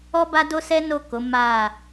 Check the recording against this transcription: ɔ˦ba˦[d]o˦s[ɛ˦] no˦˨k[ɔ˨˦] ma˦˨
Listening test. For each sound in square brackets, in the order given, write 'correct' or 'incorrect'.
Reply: correct, correct, incorrect: o˨˦

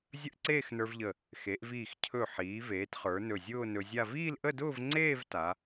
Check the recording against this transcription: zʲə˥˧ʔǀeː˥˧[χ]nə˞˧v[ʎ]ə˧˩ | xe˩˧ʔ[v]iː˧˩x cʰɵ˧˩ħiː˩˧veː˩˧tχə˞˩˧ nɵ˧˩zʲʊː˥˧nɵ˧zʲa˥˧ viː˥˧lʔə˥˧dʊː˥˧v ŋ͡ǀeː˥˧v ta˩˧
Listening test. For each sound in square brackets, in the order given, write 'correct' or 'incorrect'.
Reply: incorrect: x, correct, correct

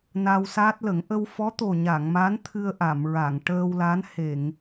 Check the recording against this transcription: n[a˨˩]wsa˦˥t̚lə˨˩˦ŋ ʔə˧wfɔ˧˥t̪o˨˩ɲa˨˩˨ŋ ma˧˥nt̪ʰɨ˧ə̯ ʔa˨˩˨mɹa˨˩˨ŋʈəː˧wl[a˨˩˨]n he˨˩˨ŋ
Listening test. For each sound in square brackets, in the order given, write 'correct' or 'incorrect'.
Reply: incorrect: a˧, incorrect: a˧˥

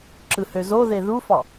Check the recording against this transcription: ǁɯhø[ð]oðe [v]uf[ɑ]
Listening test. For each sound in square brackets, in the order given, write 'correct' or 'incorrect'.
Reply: incorrect: z, incorrect: ð, correct

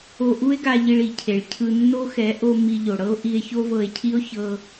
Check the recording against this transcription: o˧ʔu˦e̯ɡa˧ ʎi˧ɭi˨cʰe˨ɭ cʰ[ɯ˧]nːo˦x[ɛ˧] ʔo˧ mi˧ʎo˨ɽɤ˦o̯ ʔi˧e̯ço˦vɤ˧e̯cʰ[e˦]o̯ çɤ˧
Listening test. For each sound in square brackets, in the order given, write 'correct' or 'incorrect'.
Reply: correct, incorrect: ɛ˨˦, incorrect: i˦

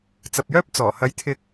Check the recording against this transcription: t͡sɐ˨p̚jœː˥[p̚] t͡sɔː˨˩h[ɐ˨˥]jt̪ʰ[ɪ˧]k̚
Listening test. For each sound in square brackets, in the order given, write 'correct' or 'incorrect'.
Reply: correct, correct, correct

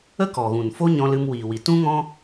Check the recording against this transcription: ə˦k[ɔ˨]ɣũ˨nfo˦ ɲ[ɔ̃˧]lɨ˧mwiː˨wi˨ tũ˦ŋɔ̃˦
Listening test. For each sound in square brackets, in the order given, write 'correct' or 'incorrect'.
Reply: correct, correct

